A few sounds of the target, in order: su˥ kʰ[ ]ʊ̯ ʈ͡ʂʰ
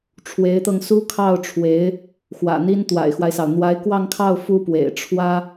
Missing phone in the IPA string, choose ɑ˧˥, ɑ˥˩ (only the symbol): ɑ˥˩